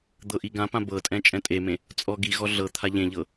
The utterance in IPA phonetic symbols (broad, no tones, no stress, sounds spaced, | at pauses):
d̪ ɤ ʔ i ɡ ã p ã b ɤ tʼ ɛ̃ t͡ʃʼ ɛ̃ tʼ e m ẽ | t͡sʼ ɔ ɡ i ɣ ɔ ɮ ɤ t̪ʰ a ʎ ẽ ʎ ɤ